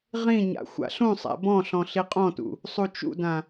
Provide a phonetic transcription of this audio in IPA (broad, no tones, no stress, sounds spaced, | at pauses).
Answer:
ʁ ĩ ɲ a̰ xʷ a̰ ɬ ũ sˤ æ̰ b ɔ̃ ɬ ɔ̃ ɬ i qʼ ɔ̃ t ṵ | sˤ u t͡ʃ ṵ d ã